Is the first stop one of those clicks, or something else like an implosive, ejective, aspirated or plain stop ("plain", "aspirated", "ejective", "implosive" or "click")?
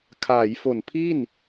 aspirated